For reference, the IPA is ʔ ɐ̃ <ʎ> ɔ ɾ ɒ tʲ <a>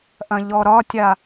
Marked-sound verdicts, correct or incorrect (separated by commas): correct, correct